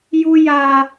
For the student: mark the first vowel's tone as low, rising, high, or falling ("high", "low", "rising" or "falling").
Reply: low